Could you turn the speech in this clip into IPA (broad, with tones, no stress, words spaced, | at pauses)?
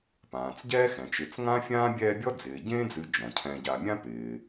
pãː˩t͡sɟɛː˥xɛ̃˩t͡ʃɪ˨t͡s ŋã˥fʲãː˥bʲɛː˦bʲɔ˥ d͡zɪː˩ɟẽː˥d͡zɨ˨ d͡ʒɔ̃˩cʰɛ̃˨ɟa˨mʲã˥ pɪː˩